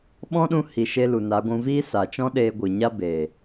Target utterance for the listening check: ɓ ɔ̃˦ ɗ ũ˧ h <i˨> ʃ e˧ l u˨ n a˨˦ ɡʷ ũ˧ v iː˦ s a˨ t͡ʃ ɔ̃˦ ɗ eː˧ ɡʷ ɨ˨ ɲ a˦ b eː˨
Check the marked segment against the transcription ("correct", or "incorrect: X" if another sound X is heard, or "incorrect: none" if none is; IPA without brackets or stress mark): correct